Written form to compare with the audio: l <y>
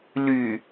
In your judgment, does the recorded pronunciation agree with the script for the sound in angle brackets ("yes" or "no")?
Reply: yes